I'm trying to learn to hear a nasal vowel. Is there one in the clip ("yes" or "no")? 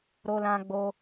yes